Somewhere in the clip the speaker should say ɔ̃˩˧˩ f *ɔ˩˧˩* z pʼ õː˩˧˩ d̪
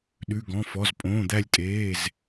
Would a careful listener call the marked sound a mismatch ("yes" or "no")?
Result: no